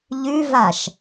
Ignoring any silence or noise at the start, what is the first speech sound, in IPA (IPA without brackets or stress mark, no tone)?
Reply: ʎ